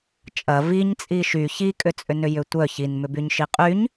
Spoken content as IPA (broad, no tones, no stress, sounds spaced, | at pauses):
t͡ʃʼ ɐ v i ɲ t͡sʼ i ʃ y ç i kʼ ʏ t͡sʼ ʏ n ʏ j ʏ tʷ œ ç i n m ʏ b y ɲ ʃ i qʼ y ɲ